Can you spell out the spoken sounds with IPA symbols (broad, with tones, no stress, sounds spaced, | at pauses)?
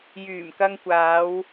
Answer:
j yː˨˩ m k ɐ˧ ŋ kʷ aː˨˧ w